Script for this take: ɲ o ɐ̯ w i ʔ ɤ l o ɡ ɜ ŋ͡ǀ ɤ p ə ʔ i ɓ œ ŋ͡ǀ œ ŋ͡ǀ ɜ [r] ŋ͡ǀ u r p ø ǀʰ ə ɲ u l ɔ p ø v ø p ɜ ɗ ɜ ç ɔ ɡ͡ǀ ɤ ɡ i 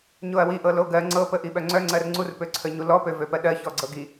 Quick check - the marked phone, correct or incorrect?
correct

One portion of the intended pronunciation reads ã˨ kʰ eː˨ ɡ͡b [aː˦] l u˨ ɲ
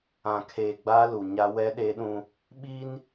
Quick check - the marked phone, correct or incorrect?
correct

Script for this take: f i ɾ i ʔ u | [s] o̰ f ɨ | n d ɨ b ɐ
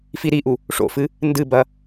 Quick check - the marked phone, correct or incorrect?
incorrect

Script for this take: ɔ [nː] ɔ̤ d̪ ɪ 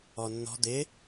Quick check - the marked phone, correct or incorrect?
correct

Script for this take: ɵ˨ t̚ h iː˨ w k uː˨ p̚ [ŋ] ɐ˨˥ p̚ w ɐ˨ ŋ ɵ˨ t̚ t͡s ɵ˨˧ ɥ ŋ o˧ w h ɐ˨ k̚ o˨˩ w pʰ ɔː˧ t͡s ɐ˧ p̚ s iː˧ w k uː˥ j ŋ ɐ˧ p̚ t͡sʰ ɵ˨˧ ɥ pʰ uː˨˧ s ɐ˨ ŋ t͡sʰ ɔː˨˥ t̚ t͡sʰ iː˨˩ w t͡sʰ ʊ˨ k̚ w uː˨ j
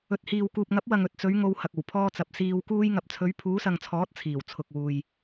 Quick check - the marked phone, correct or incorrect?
correct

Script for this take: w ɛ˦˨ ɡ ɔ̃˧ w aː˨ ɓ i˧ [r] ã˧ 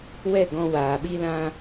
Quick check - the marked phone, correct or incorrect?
incorrect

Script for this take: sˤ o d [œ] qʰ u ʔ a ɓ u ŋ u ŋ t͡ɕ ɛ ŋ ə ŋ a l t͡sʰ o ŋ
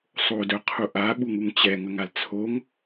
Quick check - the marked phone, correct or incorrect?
correct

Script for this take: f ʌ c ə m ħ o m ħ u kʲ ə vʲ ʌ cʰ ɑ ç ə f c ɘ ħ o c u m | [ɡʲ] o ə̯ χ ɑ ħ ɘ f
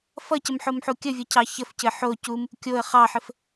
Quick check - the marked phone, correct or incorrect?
incorrect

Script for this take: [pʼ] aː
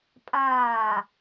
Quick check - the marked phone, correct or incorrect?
correct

